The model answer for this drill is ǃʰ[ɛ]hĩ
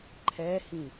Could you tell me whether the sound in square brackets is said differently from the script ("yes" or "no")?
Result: no